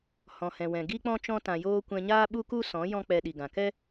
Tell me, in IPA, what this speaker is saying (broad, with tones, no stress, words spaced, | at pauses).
hɔ̃˨hɛ̃˨ wɛ̃˨ɡi˦k͡pɔ̃˦ t͡ʃɔ̃˧tã˨joː˧ kʷɛ̃˧ɲaː˦ɓu˦ku˦ sɔ̃˨˦ jɔ̃˦k͡pɛ˧ ɗi˨ɡã˨kɛ˦